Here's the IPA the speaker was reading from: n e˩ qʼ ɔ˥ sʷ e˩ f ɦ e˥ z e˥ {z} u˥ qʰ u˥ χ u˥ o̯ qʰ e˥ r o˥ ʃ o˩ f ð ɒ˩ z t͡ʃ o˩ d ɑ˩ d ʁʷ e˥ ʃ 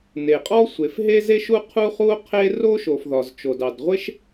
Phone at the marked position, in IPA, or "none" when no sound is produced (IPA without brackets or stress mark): ʃ